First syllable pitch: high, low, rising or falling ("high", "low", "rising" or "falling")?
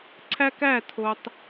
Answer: high